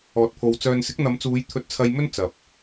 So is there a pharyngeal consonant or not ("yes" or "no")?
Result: no